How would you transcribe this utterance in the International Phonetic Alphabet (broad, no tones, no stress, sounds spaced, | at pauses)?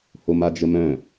h o m a d͡ʒ ə m œ̃